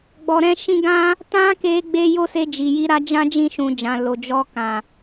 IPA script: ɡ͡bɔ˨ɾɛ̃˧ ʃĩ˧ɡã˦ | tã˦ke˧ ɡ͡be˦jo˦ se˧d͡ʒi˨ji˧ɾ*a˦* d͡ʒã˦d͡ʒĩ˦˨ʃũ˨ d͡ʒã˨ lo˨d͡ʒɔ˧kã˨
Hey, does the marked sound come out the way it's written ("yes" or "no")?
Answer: yes